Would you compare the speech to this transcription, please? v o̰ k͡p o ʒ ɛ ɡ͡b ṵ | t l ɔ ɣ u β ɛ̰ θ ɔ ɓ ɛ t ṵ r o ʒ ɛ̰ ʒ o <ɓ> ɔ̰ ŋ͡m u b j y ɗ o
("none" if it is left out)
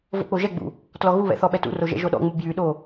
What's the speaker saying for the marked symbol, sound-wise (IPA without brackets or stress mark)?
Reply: ɗ